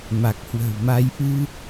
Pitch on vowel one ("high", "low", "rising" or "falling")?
low